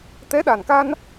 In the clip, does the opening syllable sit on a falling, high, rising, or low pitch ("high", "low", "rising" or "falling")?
rising